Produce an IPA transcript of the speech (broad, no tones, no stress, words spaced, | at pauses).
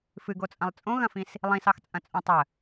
fɨɡot͡sʼɐ̃lˠ t͡sʼõɣɐ̃fĩs | lˠĩsɑxt͡sʼɐ̃t͡sʼõ tˤə